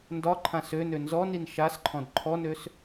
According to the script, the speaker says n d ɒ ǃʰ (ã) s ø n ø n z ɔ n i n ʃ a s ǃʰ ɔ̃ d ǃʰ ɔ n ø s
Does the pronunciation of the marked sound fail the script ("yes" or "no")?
no